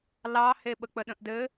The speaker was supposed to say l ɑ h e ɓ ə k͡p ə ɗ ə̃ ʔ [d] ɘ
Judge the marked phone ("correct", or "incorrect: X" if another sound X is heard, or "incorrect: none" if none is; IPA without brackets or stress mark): correct